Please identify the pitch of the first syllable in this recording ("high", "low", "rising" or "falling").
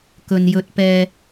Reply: low